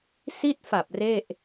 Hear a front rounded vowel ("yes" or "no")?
no